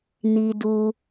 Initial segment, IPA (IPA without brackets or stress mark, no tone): n